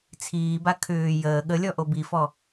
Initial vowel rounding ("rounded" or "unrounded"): unrounded